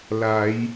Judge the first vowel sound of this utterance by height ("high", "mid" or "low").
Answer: low